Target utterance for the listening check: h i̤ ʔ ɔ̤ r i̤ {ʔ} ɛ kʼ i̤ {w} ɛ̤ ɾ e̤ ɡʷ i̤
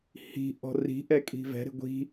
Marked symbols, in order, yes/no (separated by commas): yes, no